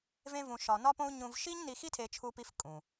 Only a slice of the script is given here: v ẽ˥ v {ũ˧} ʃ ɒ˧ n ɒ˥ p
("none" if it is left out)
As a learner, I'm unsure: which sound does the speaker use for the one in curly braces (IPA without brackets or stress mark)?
ũ˧